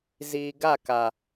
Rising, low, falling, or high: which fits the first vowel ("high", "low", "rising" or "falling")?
low